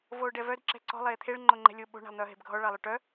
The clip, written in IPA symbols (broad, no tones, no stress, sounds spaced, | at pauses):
v oː ɖ ɛ v œ d ǁ ɛ̤ ǀ ɔ̤ lˠ eː t̪ʰ e ɭ ŋ͡ǃ o ŋ͡ǃ ɛ̤ lʲ o ɓ o̤ ɳ a̤ lˠ n̪ œː ɦ e̤ b ɡʱ ɔ ɭ ɑ lˠ œ ʈ œ